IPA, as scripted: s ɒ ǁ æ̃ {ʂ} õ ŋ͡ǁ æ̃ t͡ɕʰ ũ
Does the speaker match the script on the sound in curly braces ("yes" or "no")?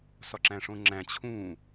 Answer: yes